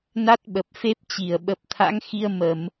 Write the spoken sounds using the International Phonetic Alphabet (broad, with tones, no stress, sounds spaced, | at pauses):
n a˦˥ t̚ ɓ ə˨˩ p̚ f e˦˥ p̚ t͡ɕ i˧˩ ə̯ ɓ ə˨˩ p̚ t̪ʰ a̰˧˥ ŋ x i˧ ə̯ m ə˧˩˨ m